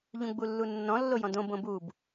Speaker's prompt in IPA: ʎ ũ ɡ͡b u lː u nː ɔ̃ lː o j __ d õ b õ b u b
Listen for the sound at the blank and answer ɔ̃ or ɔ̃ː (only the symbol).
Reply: ɔ̃